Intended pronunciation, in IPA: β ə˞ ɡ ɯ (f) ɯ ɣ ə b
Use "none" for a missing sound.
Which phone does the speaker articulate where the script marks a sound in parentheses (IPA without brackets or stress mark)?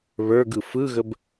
f